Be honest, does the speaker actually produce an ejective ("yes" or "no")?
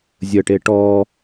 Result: no